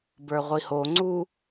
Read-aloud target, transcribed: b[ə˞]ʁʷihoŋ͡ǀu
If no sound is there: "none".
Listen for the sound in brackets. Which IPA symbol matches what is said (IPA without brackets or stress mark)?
ə˞